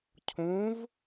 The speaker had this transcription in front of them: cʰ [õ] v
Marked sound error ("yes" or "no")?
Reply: no